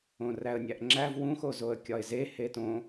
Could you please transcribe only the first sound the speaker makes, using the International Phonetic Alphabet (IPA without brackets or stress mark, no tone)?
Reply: õ